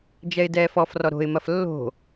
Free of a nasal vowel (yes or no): yes